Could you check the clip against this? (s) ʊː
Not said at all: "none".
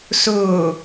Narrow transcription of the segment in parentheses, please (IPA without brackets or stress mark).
s